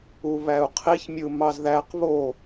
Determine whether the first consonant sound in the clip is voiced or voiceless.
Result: voiced